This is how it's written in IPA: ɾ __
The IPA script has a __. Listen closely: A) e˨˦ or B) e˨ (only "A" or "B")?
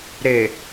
B